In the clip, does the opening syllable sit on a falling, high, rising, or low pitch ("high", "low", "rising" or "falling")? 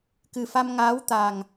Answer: low